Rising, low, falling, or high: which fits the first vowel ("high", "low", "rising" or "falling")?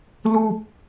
high